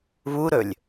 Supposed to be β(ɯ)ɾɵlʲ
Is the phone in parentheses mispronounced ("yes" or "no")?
yes